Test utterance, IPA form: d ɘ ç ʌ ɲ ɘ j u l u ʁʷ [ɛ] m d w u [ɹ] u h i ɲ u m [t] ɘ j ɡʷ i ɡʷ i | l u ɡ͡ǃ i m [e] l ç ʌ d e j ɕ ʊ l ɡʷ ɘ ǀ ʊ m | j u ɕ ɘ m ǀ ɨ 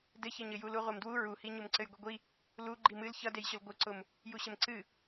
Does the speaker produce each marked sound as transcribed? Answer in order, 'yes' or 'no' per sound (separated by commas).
no, yes, no, no